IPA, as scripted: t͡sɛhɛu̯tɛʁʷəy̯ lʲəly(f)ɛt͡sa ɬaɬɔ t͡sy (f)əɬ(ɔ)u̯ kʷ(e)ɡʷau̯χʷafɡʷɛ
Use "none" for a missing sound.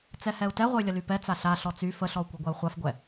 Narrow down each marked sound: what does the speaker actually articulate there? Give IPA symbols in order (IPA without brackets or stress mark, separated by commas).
p, f, ɔ, ɛ